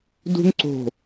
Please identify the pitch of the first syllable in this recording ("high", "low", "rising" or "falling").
high